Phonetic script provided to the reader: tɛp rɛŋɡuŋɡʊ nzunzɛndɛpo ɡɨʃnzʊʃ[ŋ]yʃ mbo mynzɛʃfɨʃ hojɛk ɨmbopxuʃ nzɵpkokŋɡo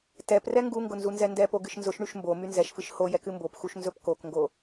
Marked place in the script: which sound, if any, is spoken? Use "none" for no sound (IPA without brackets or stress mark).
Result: ɳ